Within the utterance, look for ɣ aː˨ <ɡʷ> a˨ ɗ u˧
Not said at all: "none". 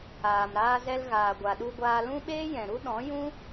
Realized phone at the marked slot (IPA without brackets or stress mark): ɡʷ